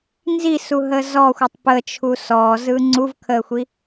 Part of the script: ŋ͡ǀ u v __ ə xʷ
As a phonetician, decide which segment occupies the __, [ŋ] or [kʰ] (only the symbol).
kʰ